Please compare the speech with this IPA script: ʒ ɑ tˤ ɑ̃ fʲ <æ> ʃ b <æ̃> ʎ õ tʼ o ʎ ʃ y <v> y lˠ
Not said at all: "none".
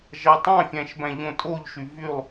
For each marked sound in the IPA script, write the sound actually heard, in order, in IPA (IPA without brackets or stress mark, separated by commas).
æ̃, æ̃, v